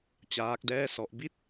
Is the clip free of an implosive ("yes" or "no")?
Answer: yes